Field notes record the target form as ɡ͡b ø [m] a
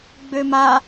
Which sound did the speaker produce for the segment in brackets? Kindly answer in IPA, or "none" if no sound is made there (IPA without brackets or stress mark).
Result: m